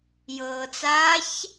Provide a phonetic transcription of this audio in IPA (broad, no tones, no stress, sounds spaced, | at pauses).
j ɤː t͡s aː ç